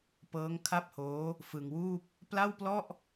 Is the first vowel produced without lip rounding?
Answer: yes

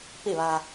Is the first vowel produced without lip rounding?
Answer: yes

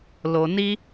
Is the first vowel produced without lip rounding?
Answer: no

